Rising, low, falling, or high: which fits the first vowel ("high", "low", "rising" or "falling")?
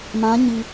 rising